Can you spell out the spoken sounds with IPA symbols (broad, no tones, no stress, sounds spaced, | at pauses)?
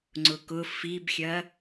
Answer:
ŋ͡ǀ ʊ k ʊ f i b xʲ ɐ